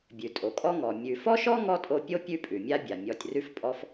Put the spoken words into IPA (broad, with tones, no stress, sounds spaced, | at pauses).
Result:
bʲ ʉ˩ tʼ o˩ kʼ ɔ˦ ŋ ɔ˩ mʲ ʉ˨ f ɔ˥ ʃ ɔ˥ ŋ ɔ˥ tʼ o˦ pʲ o˥ pʲ ʉ˦ pʼ ʉ˩ mʲ a˦ bʲ a˩ mʲ ɔ˨ tʲ r ʉ˦ f pʼ ɔ˦ f